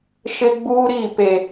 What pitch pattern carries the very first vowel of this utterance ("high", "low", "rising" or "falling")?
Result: high